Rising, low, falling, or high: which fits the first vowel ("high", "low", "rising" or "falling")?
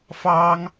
high